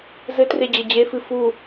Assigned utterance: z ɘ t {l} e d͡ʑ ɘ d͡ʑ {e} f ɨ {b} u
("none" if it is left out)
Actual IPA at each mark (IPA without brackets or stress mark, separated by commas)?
r, e, f